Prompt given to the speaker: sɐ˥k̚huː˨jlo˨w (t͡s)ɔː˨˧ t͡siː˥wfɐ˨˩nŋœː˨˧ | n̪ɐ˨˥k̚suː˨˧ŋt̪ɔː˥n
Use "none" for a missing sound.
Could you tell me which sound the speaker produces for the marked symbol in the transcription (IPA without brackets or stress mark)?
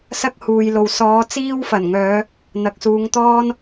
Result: s